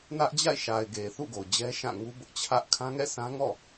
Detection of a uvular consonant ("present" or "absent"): absent